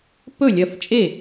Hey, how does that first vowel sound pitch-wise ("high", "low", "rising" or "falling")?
falling